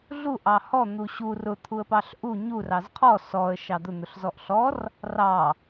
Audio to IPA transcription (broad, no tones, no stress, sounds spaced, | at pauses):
ɮ u ʔ ɑ h ɔ n̪ u ɕ u r ʊ t̪ʰ u ə̯ p ɑ ɬ ʔ u ɲ u r ɑ z qʰ ɔ s ɔ ə̯ ʃ ɑ d̪ ʊ n̪ ʊ ɬ z ɔ ʔ ɬ ɔ r | r ɑ